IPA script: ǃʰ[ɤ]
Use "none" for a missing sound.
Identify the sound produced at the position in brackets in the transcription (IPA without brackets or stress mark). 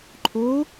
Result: o